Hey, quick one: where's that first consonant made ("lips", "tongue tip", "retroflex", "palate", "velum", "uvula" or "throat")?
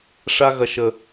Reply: retroflex